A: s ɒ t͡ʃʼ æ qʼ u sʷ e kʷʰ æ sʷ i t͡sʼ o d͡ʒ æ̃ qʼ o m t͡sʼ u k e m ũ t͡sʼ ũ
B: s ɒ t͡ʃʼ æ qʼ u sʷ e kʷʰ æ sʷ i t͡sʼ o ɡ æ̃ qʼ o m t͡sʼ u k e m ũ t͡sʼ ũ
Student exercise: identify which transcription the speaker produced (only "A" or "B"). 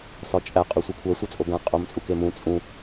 B